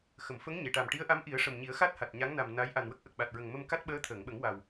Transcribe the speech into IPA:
x ə˨˩˨ m f ə˧˥ ŋ ɲ e˨˩˨ ʈ a˨˩ m ʈ i˧˥ ə̯ ʔ a˧˥ m ʔ i˨˩˦ ə̯ ʂ ə˨˩ m ɲ i˨˩˦ ə̯ x a˦˥ t̚ h a˨˩ t̚ ɲ a˧˥ ŋ n a˨˩ m n a˧˥ j ʔ a˨˩ n w ə˦˥ k̚ ʔ ə˨˩ k̚ ɓ a˨˩ t̚ ɹ ə˨˩ ŋ m ə˧ m k a˦˥ t̚ ɓ əː˧˥ t̪ʰ əː˨˩˨ ŋ ɓ ə˨˩˦ ŋ w a˨˩ w

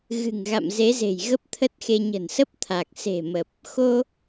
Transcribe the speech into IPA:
ɣ ɨ̤˨˩ ŋ ɣ a̰˧˨ m z e˨˦ z e̤˨˩ j ɣ ə˦˥ p̚ t̪ʰ ə˦˥ t̚ x e˧ ɲ ə̤˨˩ n s ə˦˥ p̚ t̪ʰ a˨˩ k̚ s e̤˨˩ m ə˨˩ p̚ | x o˧

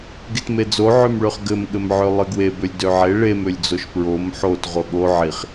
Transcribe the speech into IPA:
ɡ i t m e d͡z o ʕ ø m ɭ ø χ ɡ ɘ m ɠ ɘ m ʕ ø lˠ ɘ ɡ w e b ø lʲ d ø ʕ e ɭ e m ø lʲ d͡z o ʃ p ɹ o m ħ o t ʁ o ɠ o ʕ i χ

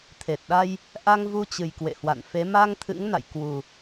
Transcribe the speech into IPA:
t̪ʰ e˨˩ t̚ ɗ a˧ j | ʔ a˧ ŋ v u˧ t͡ɕ ɨ˨˩ j k w ḛ˧˨ h w a̰˧˨ n f e˨˦ m a˧ ŋ t̪ʰ ɨ̰˧˥ ŋ n a̰˧˨ j k w u˨˩

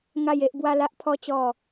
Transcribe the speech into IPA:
ŋ a˥˧ j e˦ ʔ b w a˦ l a˦ ʔ pʰ ɔ˥˧ t͡ɕ ɔ˥˧

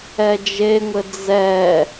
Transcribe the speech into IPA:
ɛ d͡ʒ e ŋʷ ɘ d͡z ɛ

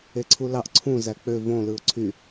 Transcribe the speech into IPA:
e ǀʰ u l ɑ ʔ ǀʰ ũ z æ k͡p ø v õ l ɯ ʊ̯ ǀʰ y

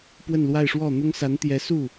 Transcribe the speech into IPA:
p w ə˥˧ n l w a˥˧ ɪ̯ ʂ w ɔ˥˩ n̪ ʊ˥ ŋ s a˧˥ n t̪ j ɛ˧˥ s u˥˩

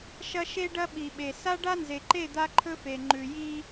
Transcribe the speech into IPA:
ʃ ɐ˦ ʃ e˦ ɖ ɐ˦ ɓ i˨ ɓ e˨ s a˦ ɖ a˦ n z e˨ ǃ e˦˨ d̪ a˦ ǃʰ ɵ˦ f e˨ ŋ͡ǃ ʉ˨ j i˦

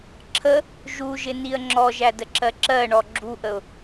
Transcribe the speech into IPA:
ǁʰ ə | ʒ u ʒ ɪ n i ə̯ ŋ͡ǁ ɔ ʒ æ d ə ǁ ɜ ǁ ɜ ɳ ɔ ɡ͡ǁ u ʔ ə ʊ̯

